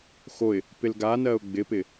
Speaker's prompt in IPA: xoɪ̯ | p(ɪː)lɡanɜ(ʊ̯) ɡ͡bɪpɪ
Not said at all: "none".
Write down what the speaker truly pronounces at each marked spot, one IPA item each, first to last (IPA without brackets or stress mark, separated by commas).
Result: ɪ, ʊ̯